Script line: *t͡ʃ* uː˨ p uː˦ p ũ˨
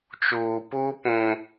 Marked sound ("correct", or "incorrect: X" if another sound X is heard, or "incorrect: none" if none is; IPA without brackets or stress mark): correct